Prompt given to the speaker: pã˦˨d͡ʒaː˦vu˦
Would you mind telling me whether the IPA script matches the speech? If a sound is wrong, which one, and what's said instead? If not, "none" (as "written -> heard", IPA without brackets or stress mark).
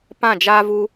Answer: none